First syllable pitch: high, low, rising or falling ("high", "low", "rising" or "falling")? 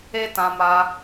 high